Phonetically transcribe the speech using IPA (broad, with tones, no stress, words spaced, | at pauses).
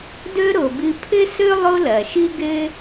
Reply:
dɵ˥ ɾo˩ bɨ˧pʰɘ˥ sɵ˥ lˠo˥lɐ˩ʃɨ˥ ɡɘ˥